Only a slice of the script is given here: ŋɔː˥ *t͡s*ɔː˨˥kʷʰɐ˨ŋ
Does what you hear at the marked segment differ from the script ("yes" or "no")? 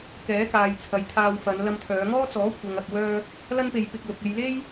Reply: no